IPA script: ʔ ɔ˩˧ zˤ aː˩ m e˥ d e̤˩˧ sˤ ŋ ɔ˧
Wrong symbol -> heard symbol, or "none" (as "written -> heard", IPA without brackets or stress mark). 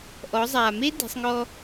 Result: none